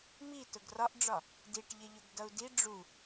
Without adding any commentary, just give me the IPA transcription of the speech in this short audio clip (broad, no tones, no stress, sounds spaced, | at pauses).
m i t ʊ ɡ r ɒ ʔ ɖ͡ʐ ɒ | d i ʈ ʎ ɪ ʎ ʊ ɡ d ʌ u̯ d i ɖ͡ʐ u